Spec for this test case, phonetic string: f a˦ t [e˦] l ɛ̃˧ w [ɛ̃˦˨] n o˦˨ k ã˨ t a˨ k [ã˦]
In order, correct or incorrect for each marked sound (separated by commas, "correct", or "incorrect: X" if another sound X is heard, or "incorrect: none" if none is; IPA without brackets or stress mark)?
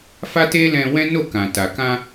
correct, incorrect: ɛ̃˦, incorrect: ã˧